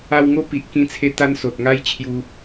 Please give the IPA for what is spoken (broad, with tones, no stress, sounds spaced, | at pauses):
a˧ w ŋ o˦ p i˨ ʔ k ĩ˧ t͡sʰ e˧ t̪ a˦ n s o˨ t̚ ŋ a˦ j t͡ɕʰ j u˧